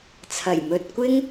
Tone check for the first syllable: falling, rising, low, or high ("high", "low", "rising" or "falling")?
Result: low